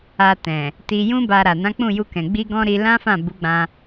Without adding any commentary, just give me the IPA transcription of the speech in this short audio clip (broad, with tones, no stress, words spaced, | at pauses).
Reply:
a˧tɛ̃˨ | ti˧jũ˦ ba˧ɾa˨ nã˨˦k͡pũ˦˨ju˧kɛ̃˨ ɡ͡bi˧ɡɔ̃˧ ɾi˧lã˦fã˦˨ bu˨˦ɡ͡bã˧